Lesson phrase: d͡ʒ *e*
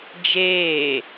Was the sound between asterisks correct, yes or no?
no